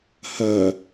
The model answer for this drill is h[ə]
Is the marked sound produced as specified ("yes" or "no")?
no